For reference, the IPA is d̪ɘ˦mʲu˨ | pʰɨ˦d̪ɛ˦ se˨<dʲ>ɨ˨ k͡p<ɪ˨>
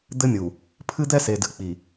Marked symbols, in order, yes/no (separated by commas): no, no